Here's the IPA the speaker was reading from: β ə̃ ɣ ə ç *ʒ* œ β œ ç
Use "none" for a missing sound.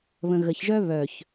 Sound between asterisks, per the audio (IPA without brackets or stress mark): ʒ